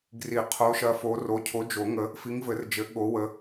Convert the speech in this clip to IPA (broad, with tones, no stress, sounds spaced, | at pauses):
ɡ r i˨˩˦ qʰ o˨˦ ʃ ɐ˨˦ f o˨˦ r o˨˦ cʰ o˨˦ d͡ʒ o˨˩˦ ŋ ə˨˦ | f i˨˦ ŋ v ɘ˨˩˦ r d͡ʒ ɘ˨˩˦ ɠ o˨˦ w ə˨˦